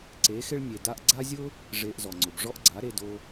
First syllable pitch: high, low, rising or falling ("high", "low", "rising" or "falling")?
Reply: rising